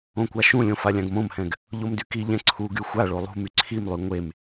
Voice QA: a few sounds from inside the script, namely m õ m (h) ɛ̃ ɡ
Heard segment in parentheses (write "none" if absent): h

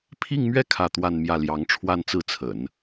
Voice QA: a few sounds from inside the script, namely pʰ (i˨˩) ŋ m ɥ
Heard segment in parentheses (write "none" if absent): i˥˧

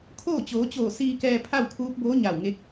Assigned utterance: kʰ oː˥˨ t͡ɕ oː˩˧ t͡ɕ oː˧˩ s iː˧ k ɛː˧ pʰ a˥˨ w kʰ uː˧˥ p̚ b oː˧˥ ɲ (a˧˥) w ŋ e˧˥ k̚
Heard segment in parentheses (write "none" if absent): a˧˩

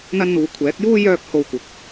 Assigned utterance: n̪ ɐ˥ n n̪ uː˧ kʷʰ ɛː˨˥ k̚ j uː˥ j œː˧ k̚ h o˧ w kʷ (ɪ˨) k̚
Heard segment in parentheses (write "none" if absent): ɪ˨˥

